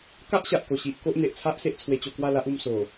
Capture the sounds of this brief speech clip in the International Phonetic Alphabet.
ka˦ʔɕa˨ʔko˨˩ɕi˨ʔ ko˦ʔn̪e˨ʔ t͡sʰa˦ʔse˦ʔ t͡sʰwe˧t͡ɕo˧kwa˥˧la˦ʔ u˧mso˨˩

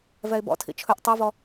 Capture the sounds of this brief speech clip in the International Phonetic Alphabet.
vɛɪ̯bɔ̰tʰḭ t͡ʃʰɵʔ tˤivɔ

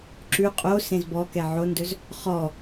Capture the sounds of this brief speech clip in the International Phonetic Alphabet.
ǁʉ qʼo sẽzbɔkɛ ʕondɵz | χɔ

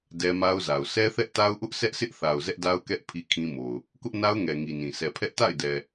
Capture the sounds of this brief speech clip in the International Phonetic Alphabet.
dɛ˦ma˦ʊ̯za˨ʊ̯ sʰɛ˦θɛ˦ʔta˦ʊ̯ʔʊ˦ʔ sʰɛ˦ʔsʰɪ˦ʔθa˨ʊ̯ zɛ˦ʔda˦ʊ̯kɛ˦ʔ pʰi˦kʰĩ˦mo˨ʊ̯ | kʊ˦ʔna˦ʊ̯ŋɛ˨ ŋi˨nĩ˨ sɛ˨pʰɛ˦ʔ ta̰˦˨ɪ̯dɛ˨

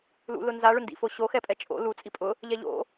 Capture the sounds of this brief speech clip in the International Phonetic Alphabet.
lṵ lʊnza ɭʊndḭfoɕo xɛpʼɛt͡ʃʼo̰ lu t͡sʼipʼʊ | ʎɛʎo̰

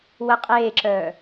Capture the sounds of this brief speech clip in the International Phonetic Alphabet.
wə qʼeːǁœː

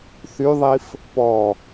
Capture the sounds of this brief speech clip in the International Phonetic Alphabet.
θyðˤif | pɔ

